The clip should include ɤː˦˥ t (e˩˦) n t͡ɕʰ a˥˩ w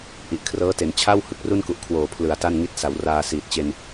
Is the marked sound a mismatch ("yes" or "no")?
no